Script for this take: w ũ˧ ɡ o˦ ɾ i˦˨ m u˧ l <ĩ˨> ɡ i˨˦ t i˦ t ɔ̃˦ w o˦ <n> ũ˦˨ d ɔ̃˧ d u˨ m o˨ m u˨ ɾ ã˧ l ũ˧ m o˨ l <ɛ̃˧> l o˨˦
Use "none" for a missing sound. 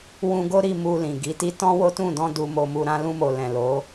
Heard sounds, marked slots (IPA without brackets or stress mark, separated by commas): ĩ˨, t, ɛ̃˨